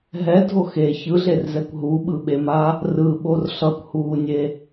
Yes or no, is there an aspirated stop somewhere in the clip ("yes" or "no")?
no